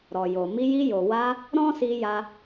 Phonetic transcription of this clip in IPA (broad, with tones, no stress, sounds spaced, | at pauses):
ɾ ɔ˨ j o˨ m i˧ j i˧ j o˨ w a˧ | ɾ ɔ̃˦ s i˧ j a˧